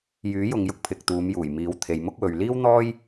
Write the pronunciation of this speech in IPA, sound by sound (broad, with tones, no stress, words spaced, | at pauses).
jyː˨˥jʊ˨ŋ jʊ˥k̚pʰɪ˨k̚t̪uː˨˧mjuː˨˩j miː˨˥wt̪ʰe˨jmʊ˥k̚wɵ˨ɥ liː˥wn̪ɔː˥j